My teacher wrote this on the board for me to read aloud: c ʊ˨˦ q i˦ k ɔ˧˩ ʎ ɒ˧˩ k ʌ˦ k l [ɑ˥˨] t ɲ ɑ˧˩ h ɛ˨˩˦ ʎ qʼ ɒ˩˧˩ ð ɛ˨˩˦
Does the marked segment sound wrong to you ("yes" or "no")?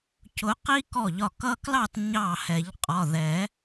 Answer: no